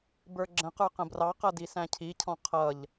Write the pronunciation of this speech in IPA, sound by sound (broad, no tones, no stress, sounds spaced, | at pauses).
b ə˞ ɡ͡ǁ ə̃ q ə˞ q ə̃ b r ɑ q ʌ d i s æ̃ cʰ i cʰ ɔ̃ qʰ ʌ ʎ